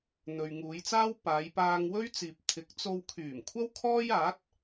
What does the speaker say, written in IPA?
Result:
n̪ ɵ˨ ɥ ŋ uː˨˧ j t͡s aː˥ w p aː˨˧ j p aː˧ ŋ w ɵ˥ ɥ t͡s iː˨ p̚ t̪ʰ ɪ˨˥ k̚ t͡s o˧ w kʰ yː˨˩ m kʷʰ ɐ˥ w kʰ ɔː˥ j aː˨˥ t̚

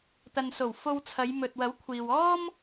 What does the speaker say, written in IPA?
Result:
t̪ ɐ˨ n s o˨˩ w f o˧ w t͡sʰ ɐ˨˧ j m ɵ˨ t̚ w ɐ˨˥ w kʷʰ iː˨ w ɔː˥ m

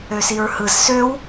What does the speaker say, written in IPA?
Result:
ø s i ɹ h ɯ z s ø w

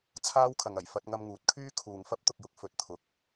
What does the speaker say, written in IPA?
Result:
t͡sʰ aː˥ w kʰ ɐ˨ ŋ ɐ˨˩ j f ɐ˧ t̚ ŋ ɐ˧ m ŋ uː˨˥ t̚ kʰ yː˥ kʰ uː˨ ŋ f ɐ˥ p̚ t̪ ʊ˨ k̚ j ʊ˨ k̚ f ɵ˨˥ t̚ t̪ʰ ʊ˨˥ k̚

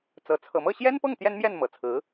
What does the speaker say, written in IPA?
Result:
t͡s ɤ˧˥ t͡sʰ ɤ˨˩ m ɤ˥˩ ɕ j ɛ˥ n p ɤ˥˩ ŋ t̪ j ɛ˥ n m j ɛ˥˩ n m ɤ˨˩ t͡sʰ ɹ̩˧˥

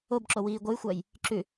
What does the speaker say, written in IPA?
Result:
o b ǁ o w iː ɡʷ ɨ j xʷ a j | ǁ ʉ

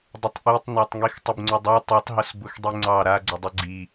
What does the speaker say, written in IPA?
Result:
dˤ ə tˤ ʔ i tˤ n ɑ tˤ ŋ i x tˤ ʊ b ŋ͡ǀ ʊ dˤ a tˤ i tˤ ɦ ʊ s b ʊ x dˤ i ŋ͡ǀ ɑ ɾ a ɡ͡ǀ ə dˤ ə ɡ͡ǀ i

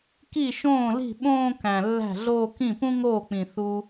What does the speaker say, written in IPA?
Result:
k i˥˩ ʃ õː˥˩ l i̤˥˩ ɓ õː˥˧ k æ̃˨˩ lː æ̤˥˩ ɮ oː˥˧ k ĩ˥˩ p ũ˥ ŋ oː˥˩ k͡p ĩ˨˩ θ u˧

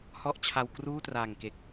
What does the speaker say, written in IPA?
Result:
h ɔ˥˩ ʔ t͡ɕʰ a˧ w k r uː˥˩ t r aː˨˩ ŋ k e˨˩ k̚

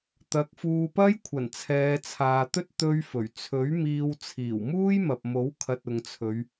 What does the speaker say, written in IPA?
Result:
t̪ ɐ˨˥ k̚ f uː˧ p ɐ˥ j kʷʰ ɐ˨˩ n t͡sʰ ɛː˨˧ t͡sʰ aː˨ t̪ ɵ˥ t̚ t̪ ɵ˥ ɥ f ɵ˨˩ ɥ t͡sʰ ɵ˨˥ ɥ m iː˧ w t͡sʰ iː˨˩ w m uː˥ j m ɐ˨ p̚ m o˨˥ w kʰ ɐ˧ t̚ ʊ˨ ŋ t͡sʰ ɵ˨˧ ɥ

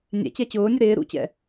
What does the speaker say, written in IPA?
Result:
nʲ ɛ̰ t͡ɕ ɛ t͡ɕ ʊː nʲ ʊ ɾ ɪː ɾ ṵ t͡ɕ ɛ̰

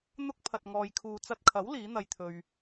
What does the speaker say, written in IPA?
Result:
n̪ ʊ˥ k̚ pʰ ɐ˨ t̚ ŋ ɔː˨ j kʰ uː˨ t͡s ɐ˧ t̚ kʰ ɐ˨˥ w l iː˨˥ n̪ ɐ˧ j t̪ʰ ɵ˧ ɥ

